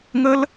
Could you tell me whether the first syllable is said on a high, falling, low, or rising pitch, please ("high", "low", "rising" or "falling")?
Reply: high